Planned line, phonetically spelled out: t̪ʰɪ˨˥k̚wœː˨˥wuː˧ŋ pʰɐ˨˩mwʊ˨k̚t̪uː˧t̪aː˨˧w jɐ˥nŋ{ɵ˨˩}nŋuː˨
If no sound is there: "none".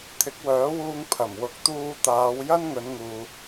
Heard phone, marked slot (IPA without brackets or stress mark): ɵ˨˧